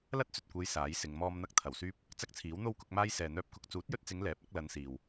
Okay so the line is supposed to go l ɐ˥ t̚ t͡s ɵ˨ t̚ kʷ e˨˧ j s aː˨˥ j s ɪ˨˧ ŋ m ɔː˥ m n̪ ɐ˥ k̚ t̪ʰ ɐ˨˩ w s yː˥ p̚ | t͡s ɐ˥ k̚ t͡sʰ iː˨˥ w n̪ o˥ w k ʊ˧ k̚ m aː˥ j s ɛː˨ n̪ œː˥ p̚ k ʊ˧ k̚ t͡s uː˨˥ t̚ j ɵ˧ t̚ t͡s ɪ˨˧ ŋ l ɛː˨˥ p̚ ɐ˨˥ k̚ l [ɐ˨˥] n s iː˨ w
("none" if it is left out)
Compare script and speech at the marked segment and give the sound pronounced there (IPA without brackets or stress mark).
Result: ɐ˨˧